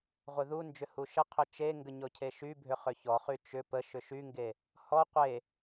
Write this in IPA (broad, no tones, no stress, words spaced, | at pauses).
ʁʷeðund͡ʒʏ huʃəqʰʏ t͡ʃeŋɡə ɲɔcʰeʃybʱʏ χʏçɔχy t͡ʃʏ pə ʃʏʃyŋɡe | hɔ qʷe